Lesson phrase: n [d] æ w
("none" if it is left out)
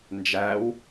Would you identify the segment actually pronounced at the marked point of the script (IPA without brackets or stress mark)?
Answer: d͡ʒ